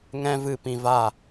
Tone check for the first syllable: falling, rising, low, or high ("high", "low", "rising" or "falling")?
high